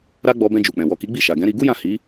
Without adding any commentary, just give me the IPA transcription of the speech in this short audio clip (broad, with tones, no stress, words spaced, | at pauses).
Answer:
ɾa˦ɡ͡bɔ˧ bɛ̃˧d͡ʒu˨k͡pɛ̃˨ wɔ˨ ki˨˦ɡ͡bi˦˨ʃa˨ɡɛ̃˨˦ ɾi˧ɡu˦jã˦˨ hi˨˦